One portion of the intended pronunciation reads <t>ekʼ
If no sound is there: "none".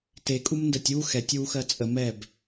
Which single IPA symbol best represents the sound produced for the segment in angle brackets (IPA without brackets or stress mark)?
t